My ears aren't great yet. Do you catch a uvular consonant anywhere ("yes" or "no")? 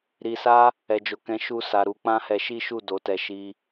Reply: no